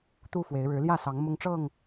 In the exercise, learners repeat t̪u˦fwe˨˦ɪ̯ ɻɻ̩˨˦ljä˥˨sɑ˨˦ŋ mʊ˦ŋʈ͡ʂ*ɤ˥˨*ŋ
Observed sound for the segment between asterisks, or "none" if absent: ɤ˥˨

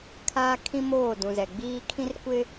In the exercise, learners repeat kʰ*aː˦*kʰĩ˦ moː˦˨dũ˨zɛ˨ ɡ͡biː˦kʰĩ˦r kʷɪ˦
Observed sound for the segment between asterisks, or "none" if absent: aː˦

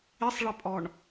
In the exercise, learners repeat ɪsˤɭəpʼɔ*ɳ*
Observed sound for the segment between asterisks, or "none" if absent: ɳ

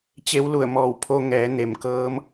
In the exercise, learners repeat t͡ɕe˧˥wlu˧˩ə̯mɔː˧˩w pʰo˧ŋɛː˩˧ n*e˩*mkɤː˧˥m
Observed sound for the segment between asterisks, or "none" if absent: e˩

